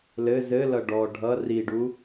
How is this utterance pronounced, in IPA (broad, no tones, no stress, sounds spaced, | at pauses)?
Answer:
l ɘ z ɘ l ʌ ɖ ɔ ɖʱ ʌ r i ɖ u